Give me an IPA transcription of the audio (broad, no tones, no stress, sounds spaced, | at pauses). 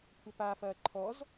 kʷʰ ɐ p a f ɐː ǃʰ ɔ z